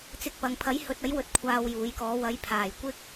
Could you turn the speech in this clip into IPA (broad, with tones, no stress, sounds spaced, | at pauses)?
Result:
t͡s ɪ˧ k̚ p ɐ˨ ŋ pʰ ɐ˨˥ j h ɵ˨ t̚ ɐ˨˥ j w ɵ˨˥ t̚ kʷʰ aː˧ w j uː˨˥ j k ɔː˨˥ w ɐ˨˧ j pʰ aː˨˩ j kʷ ɪ˥ k̚